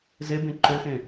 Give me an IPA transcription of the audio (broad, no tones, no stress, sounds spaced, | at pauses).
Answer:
z e b ẽ ǃ ø x ẽ